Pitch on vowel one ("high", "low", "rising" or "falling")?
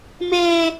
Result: high